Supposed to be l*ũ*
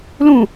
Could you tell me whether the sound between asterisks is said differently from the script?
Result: no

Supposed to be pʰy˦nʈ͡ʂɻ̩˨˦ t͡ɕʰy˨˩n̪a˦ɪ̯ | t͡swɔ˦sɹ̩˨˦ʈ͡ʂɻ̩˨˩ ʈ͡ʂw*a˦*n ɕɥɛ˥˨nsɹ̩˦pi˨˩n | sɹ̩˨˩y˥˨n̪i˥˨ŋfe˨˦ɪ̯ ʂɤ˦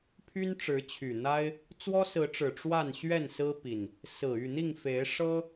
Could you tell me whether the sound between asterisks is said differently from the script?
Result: yes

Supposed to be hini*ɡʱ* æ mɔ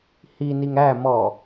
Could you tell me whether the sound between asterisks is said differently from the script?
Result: yes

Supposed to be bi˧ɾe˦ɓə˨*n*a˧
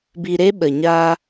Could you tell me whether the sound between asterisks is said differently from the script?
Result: yes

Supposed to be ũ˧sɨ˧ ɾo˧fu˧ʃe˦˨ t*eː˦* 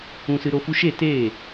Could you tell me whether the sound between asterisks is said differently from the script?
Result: yes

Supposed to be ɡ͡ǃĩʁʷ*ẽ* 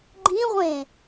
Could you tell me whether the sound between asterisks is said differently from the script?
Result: no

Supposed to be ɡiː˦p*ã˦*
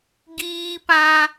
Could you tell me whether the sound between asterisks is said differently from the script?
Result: no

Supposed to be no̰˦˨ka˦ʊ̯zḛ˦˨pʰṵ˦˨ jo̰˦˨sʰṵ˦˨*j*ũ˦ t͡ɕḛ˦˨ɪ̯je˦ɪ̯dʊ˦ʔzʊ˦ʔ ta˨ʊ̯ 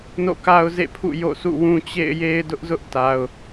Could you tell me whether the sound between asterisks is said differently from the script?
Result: yes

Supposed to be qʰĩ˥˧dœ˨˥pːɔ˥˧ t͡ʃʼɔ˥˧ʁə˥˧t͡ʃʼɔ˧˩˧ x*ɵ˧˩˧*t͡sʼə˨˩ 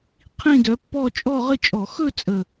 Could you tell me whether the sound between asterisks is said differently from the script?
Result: yes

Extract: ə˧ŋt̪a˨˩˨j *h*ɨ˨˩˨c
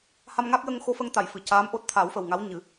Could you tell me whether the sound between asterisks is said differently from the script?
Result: yes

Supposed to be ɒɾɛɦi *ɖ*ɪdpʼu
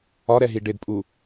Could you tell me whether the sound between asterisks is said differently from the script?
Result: no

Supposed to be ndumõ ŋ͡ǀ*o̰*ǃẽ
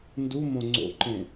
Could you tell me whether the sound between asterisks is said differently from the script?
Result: no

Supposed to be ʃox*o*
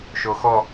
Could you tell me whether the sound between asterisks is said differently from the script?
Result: yes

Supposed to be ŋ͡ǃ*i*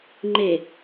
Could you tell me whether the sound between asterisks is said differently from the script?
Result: yes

